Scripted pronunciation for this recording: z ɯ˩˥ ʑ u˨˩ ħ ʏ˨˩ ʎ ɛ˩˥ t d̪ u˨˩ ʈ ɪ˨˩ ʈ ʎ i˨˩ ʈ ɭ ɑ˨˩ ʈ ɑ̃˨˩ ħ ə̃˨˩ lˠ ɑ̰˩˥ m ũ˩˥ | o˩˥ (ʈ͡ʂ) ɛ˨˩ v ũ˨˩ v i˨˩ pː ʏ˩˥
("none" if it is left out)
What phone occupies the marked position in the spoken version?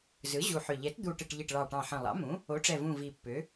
ʈ͡ʂ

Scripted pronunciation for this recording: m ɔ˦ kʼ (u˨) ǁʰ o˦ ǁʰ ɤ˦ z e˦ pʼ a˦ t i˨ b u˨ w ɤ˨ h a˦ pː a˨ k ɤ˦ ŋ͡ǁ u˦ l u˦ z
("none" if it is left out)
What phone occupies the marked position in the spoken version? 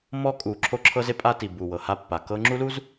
u˨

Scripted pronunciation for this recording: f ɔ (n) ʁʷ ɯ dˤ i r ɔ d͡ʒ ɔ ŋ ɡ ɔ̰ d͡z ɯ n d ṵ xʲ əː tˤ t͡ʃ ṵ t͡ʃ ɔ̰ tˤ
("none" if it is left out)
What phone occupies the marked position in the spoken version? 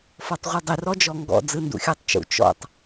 tˤ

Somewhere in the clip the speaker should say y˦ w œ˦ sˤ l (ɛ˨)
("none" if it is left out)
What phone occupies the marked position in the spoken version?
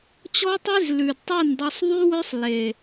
e˨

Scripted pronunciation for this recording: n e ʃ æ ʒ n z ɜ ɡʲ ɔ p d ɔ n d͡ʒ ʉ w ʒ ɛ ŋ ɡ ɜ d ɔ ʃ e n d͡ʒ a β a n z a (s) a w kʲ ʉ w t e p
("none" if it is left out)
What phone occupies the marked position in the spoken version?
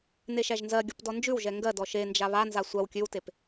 sʷ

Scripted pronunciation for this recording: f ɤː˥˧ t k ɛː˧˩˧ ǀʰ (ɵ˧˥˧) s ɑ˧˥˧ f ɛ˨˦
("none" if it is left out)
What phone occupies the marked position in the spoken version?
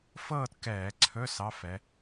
ɵ˧˥˧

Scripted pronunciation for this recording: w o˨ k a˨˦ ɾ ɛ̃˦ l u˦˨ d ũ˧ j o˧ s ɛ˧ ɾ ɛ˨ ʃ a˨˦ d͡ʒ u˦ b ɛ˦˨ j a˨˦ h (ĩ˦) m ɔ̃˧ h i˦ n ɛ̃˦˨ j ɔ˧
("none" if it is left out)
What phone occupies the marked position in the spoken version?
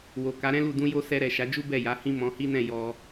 ĩ˦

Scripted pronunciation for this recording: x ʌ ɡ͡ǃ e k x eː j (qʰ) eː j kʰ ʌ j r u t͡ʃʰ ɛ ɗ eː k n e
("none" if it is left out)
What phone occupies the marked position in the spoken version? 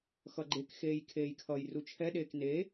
kʰ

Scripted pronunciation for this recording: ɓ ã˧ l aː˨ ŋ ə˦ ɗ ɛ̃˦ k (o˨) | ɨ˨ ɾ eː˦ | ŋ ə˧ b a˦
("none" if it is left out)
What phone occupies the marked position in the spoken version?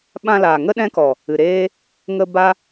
ɔ˨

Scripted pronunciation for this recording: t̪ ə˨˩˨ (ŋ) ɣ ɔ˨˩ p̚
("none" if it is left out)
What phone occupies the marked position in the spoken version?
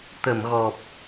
m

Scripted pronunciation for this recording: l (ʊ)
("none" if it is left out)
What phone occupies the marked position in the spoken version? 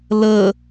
ə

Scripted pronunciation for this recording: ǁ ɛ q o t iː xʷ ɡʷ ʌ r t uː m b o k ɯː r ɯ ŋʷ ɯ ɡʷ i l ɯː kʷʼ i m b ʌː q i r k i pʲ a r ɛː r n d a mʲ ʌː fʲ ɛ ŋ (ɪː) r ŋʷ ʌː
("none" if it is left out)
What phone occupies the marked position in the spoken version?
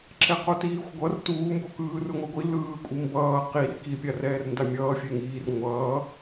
iː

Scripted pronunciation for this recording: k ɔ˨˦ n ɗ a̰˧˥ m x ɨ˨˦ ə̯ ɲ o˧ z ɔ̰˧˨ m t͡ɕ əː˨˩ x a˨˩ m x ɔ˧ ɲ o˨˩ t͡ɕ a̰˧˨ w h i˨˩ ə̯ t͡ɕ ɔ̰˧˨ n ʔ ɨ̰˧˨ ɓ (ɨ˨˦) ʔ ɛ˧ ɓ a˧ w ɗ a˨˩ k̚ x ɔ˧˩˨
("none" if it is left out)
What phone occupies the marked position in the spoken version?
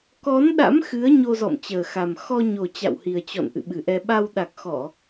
ɨ˨˩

